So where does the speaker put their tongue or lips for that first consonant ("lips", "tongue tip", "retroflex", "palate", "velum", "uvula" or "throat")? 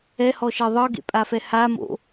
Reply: throat